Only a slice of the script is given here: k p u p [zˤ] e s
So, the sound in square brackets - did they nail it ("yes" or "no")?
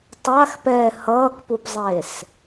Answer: yes